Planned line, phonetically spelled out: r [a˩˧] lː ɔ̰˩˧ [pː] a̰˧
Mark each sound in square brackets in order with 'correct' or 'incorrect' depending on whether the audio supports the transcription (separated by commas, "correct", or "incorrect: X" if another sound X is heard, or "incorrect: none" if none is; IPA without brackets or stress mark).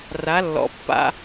correct, correct